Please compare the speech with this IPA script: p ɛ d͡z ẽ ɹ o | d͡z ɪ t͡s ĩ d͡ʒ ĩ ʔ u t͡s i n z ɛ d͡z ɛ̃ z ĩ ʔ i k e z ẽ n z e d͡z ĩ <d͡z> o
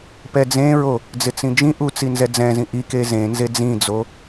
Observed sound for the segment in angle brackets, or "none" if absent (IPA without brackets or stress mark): d͡z